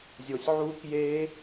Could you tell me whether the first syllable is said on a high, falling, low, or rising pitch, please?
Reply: low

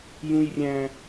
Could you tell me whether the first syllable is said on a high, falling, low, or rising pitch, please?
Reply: high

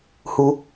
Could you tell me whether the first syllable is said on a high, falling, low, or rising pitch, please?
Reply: low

